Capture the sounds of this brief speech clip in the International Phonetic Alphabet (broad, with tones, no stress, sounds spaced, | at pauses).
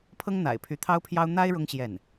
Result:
pʰ ɤ˥ ŋ n̪ a̰˨˩ ɪ̯ pʰ y˧˥ t̪ʰ ɑ˥ ʊ̯ pʰ j ɑ˥ ʊ̯ n̪ a˥ ɪ̯ ɻ ʊ˥ ŋ ɕ j ɛ˥˩ n